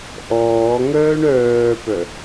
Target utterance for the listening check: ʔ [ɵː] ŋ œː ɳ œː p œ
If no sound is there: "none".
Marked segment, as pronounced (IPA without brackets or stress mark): ɔː